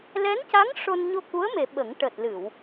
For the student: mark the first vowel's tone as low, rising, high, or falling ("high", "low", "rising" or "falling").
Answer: rising